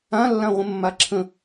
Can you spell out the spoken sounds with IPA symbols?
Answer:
ã lː ã ʁʷ ə̃ mː a ǁʰ ə̃

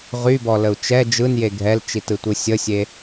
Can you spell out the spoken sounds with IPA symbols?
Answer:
ʁ y b ɔ l ə u̯ t͡ʃ ɛ d͡ʒ ɯ n j e ɡʱ ɛ l t͡ʃ i t ɯ tʷ ɯ sʲ ə sʲ e

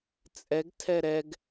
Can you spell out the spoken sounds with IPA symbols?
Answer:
t͡sʼ ɛ ɡ tʰ ɛ ɾ ɛ ɡ

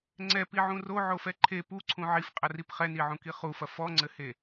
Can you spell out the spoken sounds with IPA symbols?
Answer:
ŋ͡ǀ ɛ p i ʕ ũ r o ʕ o f ɛ ǃʰ e p u ǀʰ ũ ʕ i f qʼ ɐ r i p χ ɛ n i ʕ ũ k i χ u f ɐ f ɔ ŋ͡ǀ ɘ h e

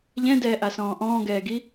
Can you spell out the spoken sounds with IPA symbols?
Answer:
ʎ ɛ̃ d ɛː ʔ a s ɔ̃ː ʔ ɔ̃ː ɡ ɛː ɡ i

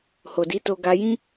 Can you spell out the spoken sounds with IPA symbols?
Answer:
h o˨ d i˨˦ t o˧ ɡ a˧ j ĩ˦

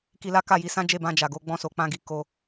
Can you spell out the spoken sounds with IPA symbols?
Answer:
k i˧ l a˦ k a˦˨ j i˧ s ã˦ d͡ʒ e˦˨ b ã˧ d͡ʒ a˨ ɡ o˧ ɡ͡b ɔ̃˧ s o˨ k͡p ã˧ ɡ i˨ k o˧

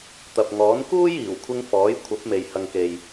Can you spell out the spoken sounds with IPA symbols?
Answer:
t̪ ɐ˨ p̚ ŋ ɔː˨˥ n k uː˥ j iː˨˩ w kʷʰ ɪ˧ ŋ f ɔː˨˥ j kʷʰ ɐ˨˥ p̚ m e˨ j h ɐ˨ ŋ k e˨ j

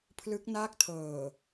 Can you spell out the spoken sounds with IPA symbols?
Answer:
pʰ l ɯ˦˥ k̚ n aː˥˩ k̚ tʰ ɤː˨˩

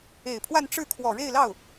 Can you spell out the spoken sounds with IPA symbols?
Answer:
e˨˩ ɪ̯ pʰ w a˥˧ n ʈ͡ʂ ɻ̩˥˩ kʰ w ɔ˨˩ ɻ e˥˧ ɪ̯ l ɑ˥˩ ʊ̯

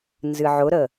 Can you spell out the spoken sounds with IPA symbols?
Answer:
n z ɨ ʕ ʊ ɾ ə

